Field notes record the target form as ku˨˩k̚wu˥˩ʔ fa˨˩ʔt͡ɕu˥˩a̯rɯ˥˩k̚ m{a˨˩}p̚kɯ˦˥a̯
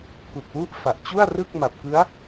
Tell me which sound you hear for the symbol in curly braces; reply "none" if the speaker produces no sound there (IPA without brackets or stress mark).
a˨˩